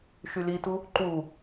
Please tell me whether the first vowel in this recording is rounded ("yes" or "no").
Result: yes